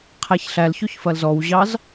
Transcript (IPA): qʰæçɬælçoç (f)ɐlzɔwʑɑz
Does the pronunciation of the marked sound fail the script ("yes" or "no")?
no